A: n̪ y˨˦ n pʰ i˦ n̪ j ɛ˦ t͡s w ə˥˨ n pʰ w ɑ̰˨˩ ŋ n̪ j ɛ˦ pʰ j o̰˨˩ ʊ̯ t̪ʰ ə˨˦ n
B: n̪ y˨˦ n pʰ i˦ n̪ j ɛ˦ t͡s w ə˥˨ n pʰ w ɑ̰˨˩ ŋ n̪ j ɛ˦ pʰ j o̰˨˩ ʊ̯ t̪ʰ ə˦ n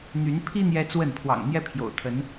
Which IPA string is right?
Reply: A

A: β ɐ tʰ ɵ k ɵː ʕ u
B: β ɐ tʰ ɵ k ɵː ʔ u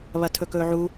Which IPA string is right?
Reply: A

